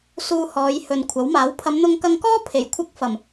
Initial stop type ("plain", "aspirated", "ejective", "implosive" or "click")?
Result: aspirated